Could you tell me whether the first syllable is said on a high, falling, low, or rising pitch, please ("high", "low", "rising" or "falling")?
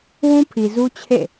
high